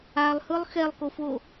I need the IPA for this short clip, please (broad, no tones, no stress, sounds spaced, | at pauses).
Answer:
a lˠ h ɯ lˠ x ɛ lˠ k o f o